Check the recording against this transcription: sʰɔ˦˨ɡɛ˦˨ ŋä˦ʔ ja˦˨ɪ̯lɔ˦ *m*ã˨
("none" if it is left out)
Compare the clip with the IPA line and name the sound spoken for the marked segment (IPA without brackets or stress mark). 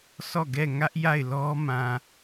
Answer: m